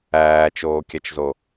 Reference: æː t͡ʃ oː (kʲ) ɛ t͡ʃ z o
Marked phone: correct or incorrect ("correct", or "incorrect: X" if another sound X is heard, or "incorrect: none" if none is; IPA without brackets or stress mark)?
correct